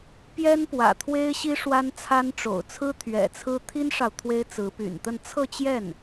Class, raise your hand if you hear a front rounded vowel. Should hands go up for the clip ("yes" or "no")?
yes